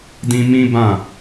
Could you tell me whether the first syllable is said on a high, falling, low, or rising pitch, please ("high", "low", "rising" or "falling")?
high